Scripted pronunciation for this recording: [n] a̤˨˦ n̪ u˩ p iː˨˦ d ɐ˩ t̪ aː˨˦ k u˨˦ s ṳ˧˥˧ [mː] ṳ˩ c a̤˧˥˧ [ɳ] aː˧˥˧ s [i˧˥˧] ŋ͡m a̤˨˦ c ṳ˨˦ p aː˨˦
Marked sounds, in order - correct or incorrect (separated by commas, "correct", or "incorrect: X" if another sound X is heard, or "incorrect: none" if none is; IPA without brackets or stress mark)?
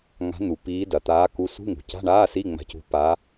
incorrect: ŋ, incorrect: ŋ, correct, correct